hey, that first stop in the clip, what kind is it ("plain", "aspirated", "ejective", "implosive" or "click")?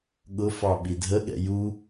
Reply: implosive